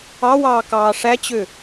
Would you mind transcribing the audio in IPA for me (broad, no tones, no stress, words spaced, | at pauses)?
ɑwɑːkɑː ʂæt͡ɕø